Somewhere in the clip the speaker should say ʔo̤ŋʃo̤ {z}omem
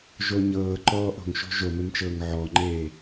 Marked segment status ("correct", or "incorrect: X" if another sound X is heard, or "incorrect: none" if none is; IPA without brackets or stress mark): incorrect: ʒ